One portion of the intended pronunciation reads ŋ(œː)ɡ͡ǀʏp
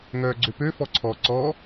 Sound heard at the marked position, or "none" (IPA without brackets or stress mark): œː